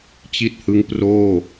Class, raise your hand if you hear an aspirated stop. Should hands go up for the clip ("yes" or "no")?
no